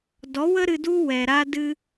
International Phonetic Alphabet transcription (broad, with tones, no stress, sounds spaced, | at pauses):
d ɔ˨˦ w ə˦ ɾ ɨ˧ d u˦ w ɛ˨ ɾ a˧ d ɨ˧